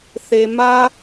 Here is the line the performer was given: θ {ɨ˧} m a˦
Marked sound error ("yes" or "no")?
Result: yes